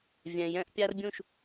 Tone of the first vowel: low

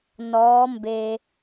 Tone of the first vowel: rising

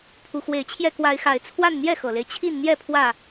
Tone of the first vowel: rising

